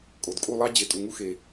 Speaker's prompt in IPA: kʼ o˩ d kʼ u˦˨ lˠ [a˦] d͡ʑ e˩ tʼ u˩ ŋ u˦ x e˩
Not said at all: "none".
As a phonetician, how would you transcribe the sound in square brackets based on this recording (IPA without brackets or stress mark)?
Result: ɑ˦